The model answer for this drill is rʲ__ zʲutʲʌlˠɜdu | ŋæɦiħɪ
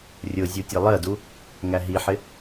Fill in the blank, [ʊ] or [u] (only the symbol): ʊ